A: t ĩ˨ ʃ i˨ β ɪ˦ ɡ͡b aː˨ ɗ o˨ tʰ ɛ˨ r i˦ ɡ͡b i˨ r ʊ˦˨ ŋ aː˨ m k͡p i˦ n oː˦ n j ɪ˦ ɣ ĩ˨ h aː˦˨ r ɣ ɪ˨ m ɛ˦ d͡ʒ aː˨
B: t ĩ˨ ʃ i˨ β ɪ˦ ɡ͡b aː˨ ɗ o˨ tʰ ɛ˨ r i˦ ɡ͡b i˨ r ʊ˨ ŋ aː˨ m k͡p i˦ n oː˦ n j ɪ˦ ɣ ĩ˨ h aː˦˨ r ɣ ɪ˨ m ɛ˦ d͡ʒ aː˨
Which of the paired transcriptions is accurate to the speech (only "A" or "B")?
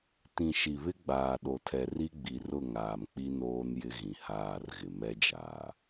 A